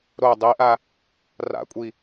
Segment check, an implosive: absent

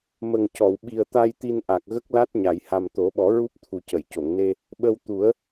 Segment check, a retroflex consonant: absent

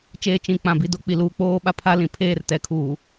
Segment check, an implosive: present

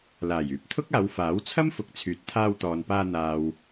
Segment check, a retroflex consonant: absent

